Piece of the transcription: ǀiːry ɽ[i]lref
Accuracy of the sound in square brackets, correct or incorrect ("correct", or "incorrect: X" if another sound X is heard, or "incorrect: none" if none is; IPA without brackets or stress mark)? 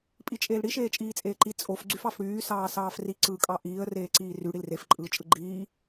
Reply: correct